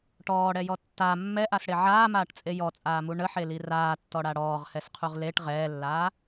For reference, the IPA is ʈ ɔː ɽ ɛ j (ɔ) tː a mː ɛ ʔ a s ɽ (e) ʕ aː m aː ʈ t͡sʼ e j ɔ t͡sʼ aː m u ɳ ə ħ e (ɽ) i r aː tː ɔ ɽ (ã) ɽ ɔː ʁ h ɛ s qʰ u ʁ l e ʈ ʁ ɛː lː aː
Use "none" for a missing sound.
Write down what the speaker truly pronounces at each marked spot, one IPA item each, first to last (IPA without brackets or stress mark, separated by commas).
ɔ, e, l, a